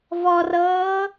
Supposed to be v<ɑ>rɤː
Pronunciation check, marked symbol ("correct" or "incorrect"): incorrect